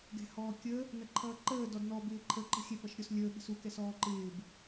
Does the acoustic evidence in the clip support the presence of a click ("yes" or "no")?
yes